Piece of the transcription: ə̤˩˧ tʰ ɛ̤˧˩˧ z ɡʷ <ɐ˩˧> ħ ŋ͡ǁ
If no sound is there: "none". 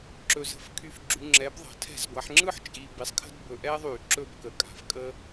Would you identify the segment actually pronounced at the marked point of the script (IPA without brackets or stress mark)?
a˩˧